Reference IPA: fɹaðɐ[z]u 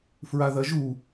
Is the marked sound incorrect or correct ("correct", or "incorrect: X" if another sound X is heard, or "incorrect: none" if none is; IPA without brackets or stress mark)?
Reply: incorrect: ʒ